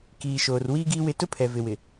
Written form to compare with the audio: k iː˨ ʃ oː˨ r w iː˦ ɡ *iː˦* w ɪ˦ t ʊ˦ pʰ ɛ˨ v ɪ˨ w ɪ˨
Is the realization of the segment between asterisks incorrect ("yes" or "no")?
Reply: no